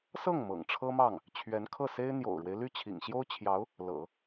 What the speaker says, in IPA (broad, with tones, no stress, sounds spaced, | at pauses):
s ɤ˥˩ ŋ m ɤ̰˨˩ ŋ ʈ͡ʂʰ ɤ˥ m ɑ˥˩ ŋ | t͡ɕʰ ɥ ɛ˧˥ n kʰ ɤ˥˩ s e˥ ɪ̯ n̪ j o̰˨˩ ʊ̯ ɻ w e˦ ɪ̯ l y˥˩ t͡ɕʰ ḭ˨˩ ŋ ɕ j o˥ ʊ̯ t͡ɕʰ j ɑ˧˥ ʊ̯ | l ɤ̰˨˩˦